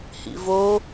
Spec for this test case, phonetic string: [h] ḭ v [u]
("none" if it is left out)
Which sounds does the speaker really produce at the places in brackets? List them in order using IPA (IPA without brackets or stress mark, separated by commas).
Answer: h, o